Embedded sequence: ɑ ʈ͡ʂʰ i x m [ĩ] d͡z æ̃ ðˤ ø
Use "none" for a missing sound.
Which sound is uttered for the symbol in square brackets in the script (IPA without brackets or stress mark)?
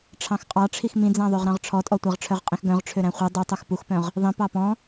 ĩ